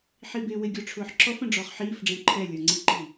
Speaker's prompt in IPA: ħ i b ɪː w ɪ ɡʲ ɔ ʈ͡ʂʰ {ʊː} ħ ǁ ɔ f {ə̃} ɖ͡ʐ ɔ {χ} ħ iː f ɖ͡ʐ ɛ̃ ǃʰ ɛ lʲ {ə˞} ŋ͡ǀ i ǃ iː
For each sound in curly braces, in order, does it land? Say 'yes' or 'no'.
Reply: yes, yes, yes, yes

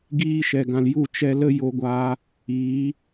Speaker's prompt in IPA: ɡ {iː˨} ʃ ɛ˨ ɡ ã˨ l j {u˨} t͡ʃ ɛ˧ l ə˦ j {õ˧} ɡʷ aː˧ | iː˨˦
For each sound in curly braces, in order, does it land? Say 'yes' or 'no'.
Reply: no, no, no

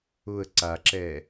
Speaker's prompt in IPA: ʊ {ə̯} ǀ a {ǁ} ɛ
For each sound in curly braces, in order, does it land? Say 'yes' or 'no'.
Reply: yes, yes

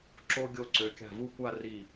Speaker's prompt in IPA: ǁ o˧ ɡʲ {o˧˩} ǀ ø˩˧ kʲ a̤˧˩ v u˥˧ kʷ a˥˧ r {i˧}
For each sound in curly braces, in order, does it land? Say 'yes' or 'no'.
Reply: yes, no

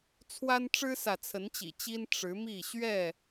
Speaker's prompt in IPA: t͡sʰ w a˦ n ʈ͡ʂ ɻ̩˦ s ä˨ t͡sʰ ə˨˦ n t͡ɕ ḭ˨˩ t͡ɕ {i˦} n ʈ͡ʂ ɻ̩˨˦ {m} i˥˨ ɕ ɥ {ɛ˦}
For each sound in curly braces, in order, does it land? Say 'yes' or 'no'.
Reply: yes, yes, no

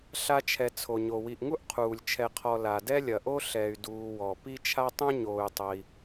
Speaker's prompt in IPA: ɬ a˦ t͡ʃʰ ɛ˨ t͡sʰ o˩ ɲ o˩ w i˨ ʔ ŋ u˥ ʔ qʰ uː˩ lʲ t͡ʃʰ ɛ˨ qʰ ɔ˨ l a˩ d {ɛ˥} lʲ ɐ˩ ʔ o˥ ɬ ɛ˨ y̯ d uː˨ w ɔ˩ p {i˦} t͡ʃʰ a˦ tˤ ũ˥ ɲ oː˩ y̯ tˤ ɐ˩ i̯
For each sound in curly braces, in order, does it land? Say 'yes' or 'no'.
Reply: yes, yes

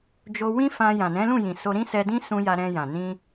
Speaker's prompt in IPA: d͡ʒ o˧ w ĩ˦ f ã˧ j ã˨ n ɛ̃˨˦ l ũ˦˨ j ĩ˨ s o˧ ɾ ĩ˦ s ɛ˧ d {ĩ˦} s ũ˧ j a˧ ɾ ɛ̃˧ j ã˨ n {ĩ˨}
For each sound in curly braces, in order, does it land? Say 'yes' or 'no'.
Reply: yes, no

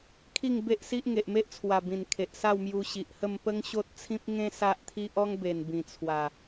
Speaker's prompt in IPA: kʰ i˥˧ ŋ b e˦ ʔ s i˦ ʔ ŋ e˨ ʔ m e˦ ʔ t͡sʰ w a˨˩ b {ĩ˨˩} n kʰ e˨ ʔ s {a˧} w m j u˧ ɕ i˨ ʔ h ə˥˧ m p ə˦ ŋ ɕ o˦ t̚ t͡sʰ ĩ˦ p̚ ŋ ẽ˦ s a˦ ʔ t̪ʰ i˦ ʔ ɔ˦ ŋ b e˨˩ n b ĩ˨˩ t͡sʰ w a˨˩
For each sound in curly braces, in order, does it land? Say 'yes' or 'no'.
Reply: yes, no

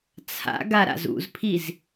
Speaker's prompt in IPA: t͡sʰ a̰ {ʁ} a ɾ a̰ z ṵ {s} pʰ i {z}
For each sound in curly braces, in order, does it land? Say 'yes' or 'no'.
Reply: no, no, yes

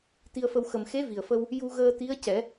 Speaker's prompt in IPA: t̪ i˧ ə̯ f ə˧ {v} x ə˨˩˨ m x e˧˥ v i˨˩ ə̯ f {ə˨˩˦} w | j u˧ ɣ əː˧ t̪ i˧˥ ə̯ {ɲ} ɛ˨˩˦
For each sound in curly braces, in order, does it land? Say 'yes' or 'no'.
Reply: no, no, no

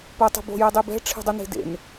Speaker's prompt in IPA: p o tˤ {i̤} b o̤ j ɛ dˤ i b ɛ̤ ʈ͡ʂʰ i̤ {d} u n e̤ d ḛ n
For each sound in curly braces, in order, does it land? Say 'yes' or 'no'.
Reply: yes, no

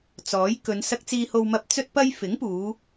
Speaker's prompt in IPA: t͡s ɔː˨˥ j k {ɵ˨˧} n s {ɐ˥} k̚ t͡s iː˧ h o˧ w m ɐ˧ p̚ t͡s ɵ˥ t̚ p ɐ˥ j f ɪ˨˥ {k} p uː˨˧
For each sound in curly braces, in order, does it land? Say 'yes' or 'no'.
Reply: yes, no, no

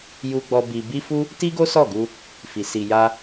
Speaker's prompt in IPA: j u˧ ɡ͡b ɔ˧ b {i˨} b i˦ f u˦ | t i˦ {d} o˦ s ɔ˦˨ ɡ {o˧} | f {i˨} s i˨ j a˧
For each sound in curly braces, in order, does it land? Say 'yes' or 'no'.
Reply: no, no, no, yes

